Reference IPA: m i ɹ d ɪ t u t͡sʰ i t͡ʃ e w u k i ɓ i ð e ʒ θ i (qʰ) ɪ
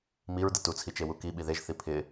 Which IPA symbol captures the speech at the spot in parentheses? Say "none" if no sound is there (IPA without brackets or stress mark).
pʰ